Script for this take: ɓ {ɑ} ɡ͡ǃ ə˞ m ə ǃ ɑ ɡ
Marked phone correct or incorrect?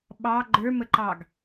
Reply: correct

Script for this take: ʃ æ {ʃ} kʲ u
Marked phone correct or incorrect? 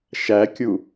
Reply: incorrect: none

